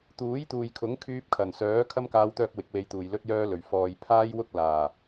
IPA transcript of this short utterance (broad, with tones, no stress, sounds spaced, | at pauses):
t̪ uː˨˥ j t̪ uː˨ j kʰ ʊ˨˥ ŋ kʰ yː˧ p̚ kʰ ɐ˨˩ n s œː˨˥ kʰ ɐ˥ m k aː˧ w t̪ œː˧ k̚ w ɪ˨˥ k̚ w e˧ j t̪ uː˨ j l ɵ˥ t̚ j œː˥ l ɵ˨˩ ɥ f ɔː˨ j pʰ aː˥ j w ʊ˥ k̚ l aː˨˩